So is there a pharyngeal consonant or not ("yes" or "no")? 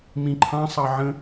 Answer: yes